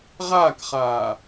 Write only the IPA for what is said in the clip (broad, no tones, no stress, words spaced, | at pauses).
ʁaːkχaː